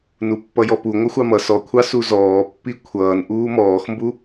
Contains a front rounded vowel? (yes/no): no